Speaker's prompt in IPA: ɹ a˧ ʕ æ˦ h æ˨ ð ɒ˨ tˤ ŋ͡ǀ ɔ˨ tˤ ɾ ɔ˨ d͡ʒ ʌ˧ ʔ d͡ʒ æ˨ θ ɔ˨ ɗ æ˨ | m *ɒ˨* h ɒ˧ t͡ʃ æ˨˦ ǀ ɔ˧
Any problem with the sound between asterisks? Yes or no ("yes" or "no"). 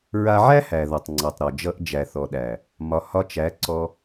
no